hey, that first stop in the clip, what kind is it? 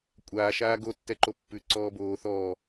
ejective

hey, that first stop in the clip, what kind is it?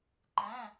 click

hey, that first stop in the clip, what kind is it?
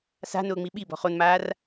implosive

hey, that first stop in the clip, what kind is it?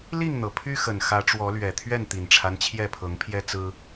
aspirated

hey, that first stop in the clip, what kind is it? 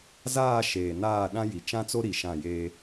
implosive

